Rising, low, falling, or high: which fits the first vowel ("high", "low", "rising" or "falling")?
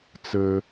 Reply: low